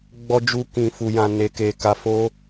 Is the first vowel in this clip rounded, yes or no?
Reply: yes